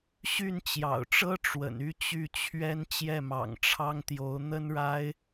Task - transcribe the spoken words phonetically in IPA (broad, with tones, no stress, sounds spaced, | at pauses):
ɕ y˥˩ n t͡ɕ j ɑ̰˨˩ ʊ̯ ʈ͡ʂ ɤ˥ ʈ͡ʂ w ə̰˨˩ n y˥˧ t͡ɕ y˥˩ t͡ɕʰ ɥ ɛ˥ n t͡ɕ j ɛ˥˩ m ɑ̰˨˩ ŋ ʈ͡ʂʰ ɑ˥ ŋ t̪ j o˧˥ ʊ̯ n̪ ə˥ n ɻ a˥ ɪ̯